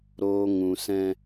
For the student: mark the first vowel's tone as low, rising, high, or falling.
low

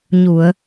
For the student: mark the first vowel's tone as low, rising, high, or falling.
low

